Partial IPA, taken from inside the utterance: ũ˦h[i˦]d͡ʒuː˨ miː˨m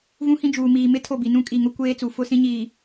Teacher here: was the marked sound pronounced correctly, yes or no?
no